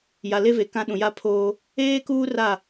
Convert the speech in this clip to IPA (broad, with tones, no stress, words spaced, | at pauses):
ja˨le˦ve˨ kã˦ ɗũ˨ja˦pʰoː˦ | eː˦kuː˦ ra˦˨